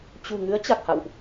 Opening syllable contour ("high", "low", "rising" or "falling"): low